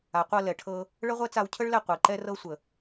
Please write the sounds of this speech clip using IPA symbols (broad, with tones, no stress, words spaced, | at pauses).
a˨qʷɤ˧lɛ˨ʈʰɤ˧ | ɭə˦ʁʷɛ˦ t͡sa˧wcʰə˦ɭlɛ˧ qʷɤ˨e̯ǃɛ˦rɤ˦ sʷə˨